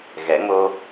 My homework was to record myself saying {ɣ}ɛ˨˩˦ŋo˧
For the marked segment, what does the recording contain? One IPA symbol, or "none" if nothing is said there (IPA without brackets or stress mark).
ɣ